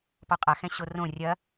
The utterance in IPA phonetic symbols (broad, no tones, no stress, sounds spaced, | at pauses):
p ɔ qʼ a x ɛ̃ ɕ o r õ rʲ ɐ